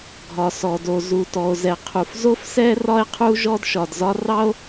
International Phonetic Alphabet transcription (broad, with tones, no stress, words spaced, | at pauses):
ɡʱɒ˩sɔ˩do˩ zu˩tɔ˩o̯zɛ˩ qʰu˩fzo˥fsɛ˥ rɒ˥e̯qʰu˥ ʒɔ˥dʃɒ˩dzɒ˥ rɑ˥o̯